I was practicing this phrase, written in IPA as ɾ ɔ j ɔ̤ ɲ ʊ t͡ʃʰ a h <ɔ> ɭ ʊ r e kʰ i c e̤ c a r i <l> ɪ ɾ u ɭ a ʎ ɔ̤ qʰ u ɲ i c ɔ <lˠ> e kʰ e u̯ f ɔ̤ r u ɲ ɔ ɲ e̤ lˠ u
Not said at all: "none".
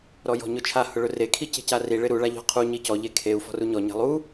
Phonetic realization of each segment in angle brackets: ʊ, ɭ, ʎ

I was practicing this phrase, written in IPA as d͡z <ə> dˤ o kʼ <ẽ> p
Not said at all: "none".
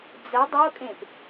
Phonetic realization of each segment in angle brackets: ə, ẽ

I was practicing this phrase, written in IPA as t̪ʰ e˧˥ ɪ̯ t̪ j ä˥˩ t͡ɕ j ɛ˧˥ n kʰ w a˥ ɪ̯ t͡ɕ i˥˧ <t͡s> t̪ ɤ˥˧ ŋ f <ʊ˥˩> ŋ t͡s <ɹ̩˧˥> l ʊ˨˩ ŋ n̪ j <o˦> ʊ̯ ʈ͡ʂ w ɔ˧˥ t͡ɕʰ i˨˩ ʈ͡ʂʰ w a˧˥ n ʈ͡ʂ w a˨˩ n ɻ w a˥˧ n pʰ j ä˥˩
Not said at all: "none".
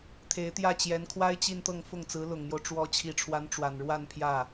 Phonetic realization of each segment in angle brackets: n, ʊ˥˩, ɹ̩˧˥, o˦

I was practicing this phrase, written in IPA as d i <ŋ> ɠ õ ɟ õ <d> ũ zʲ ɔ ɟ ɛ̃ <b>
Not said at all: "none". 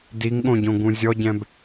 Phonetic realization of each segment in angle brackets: ŋ, ɡ, b

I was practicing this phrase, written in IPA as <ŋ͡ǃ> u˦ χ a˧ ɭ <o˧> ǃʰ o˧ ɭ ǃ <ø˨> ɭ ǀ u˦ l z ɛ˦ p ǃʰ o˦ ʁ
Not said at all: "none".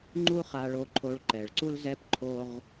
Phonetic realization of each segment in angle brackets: ŋ͡ǃ, o˧, ɛ˨

